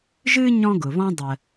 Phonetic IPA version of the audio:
ʒɨ˥ ɲɔ̃˦ɡʊ˩βɔ̃˦ dˤə˨

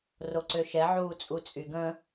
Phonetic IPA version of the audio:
roǀøʃɛ ʕuːt͡sʼut͡sʼyɡə̃

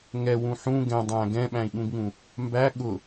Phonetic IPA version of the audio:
ŋɛwũ ħũ ɡɛ̃ dˤæ̃ ɡɛ̃ɓæ̃i̯ɠũɡŋũ | mbæ ɠʊ

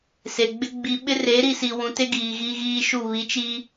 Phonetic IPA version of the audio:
se˨ɡ͡bɪ˦ ɡ͡bi˨ɓɪ˦re˨˦ ɾi˦si˨ wũ˨te˦ ɡiː˨ɣiː˦ɣiː˦ʃu˦˨ βi˨˦t͡ʃiː˦

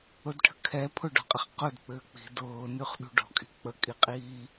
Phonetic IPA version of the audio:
ʊdʈʰə̤kʰɛ pʰʊɖɔ̤qʼɪχ qʊd k͡pʏːk͡pi̤ dʊː nyχɗṳɖɔ̤kʼi̤ k͡pəkʼiqʼiː

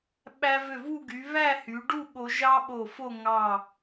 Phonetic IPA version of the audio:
ɓæ˧vø˧˩vu˥˧ ɡy˩˧ βæ˥˧hy˩˧ɖu˥˧ ɠo˧ʒɑ˥ɓo˧˩fo˥˧ ŋɑ˧˩

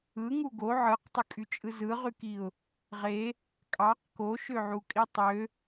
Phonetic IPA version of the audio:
ɯŋu ɡo ʕɯqtˤɯkʼyt͡ʃʼɯ zɯʁykiʊ̯ | ʁe | kʼɑq koʃøʕukʼi tˤø

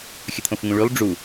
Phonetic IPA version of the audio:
xʲət̪ʰõfŋũɭylˠ ɖ͡ʐu

